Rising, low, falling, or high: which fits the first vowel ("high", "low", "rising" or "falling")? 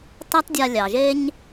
high